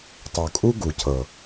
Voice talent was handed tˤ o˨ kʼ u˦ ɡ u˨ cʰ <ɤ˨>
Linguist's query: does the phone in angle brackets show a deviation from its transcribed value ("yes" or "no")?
no